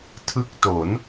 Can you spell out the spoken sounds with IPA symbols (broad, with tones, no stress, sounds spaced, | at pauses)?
tʰ ɯ˦˥ k̚ t o˩˦ n